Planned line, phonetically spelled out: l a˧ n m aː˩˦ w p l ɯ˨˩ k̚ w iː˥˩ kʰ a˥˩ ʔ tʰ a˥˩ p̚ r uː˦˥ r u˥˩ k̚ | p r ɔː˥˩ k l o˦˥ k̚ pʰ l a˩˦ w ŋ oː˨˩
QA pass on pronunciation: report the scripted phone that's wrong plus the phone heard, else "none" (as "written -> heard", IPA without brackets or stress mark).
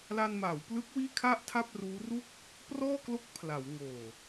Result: ɯ˨˩ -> ɯ˦˥